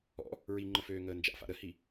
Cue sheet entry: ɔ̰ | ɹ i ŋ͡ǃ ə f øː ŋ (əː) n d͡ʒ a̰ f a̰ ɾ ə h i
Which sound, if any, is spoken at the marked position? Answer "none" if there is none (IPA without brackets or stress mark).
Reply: əː